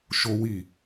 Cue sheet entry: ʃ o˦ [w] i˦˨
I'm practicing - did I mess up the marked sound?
no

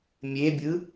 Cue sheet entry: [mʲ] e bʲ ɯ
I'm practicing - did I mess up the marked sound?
no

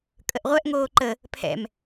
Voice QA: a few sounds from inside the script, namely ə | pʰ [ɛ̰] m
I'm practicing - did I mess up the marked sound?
no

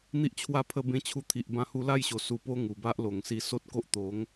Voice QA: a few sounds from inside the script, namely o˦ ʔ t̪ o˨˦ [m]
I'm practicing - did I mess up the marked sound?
yes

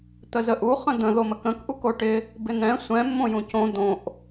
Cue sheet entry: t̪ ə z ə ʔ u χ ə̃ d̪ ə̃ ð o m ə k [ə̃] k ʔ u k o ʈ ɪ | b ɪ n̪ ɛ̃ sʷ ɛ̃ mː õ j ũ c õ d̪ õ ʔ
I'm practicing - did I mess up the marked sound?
no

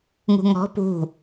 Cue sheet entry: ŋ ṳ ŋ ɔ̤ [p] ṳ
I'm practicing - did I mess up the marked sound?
no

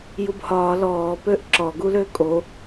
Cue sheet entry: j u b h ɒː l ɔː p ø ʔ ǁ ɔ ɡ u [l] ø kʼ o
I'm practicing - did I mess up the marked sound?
no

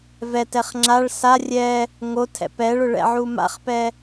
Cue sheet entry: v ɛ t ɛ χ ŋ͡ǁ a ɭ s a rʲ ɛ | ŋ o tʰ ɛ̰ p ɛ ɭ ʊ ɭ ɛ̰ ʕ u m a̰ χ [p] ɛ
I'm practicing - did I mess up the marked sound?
no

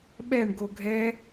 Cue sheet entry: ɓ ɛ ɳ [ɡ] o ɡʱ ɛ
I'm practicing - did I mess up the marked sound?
no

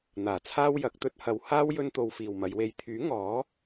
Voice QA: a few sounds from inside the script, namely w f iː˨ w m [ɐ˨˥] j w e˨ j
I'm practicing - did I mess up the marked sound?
yes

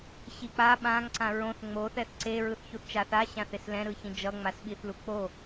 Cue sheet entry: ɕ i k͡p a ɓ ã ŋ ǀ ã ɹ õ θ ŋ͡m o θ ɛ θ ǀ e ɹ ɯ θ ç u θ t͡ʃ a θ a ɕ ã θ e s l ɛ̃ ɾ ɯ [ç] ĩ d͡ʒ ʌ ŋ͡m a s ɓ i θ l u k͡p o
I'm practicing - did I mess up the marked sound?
no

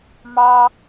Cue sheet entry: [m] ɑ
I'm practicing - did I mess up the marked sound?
no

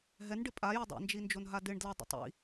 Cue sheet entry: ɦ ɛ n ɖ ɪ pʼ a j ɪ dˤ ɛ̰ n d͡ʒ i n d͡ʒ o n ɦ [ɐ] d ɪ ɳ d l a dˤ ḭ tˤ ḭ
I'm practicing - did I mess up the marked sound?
yes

